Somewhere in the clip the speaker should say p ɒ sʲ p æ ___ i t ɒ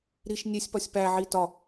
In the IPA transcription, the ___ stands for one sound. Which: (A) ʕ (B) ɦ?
A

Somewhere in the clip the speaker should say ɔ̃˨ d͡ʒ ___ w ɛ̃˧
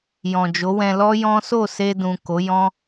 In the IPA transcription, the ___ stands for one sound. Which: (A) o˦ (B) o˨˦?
B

